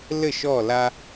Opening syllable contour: falling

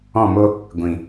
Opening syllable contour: falling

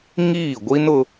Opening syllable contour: falling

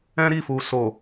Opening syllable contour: high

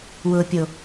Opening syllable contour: low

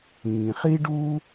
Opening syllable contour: low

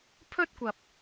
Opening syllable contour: high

